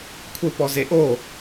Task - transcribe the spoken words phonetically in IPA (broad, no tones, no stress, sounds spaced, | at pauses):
kʷʰ e p ɔ z e ʔ o